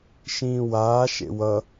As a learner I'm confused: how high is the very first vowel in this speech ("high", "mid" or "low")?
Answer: high